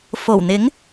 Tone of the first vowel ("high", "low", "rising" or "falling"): low